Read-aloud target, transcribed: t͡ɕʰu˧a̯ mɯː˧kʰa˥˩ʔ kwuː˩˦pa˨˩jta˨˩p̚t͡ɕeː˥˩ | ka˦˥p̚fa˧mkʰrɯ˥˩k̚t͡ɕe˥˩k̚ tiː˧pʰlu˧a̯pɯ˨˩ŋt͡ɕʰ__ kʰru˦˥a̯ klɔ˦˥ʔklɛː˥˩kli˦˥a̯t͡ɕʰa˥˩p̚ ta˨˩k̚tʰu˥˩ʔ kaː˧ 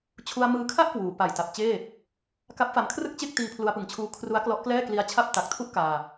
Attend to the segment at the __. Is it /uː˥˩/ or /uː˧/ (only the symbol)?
uː˧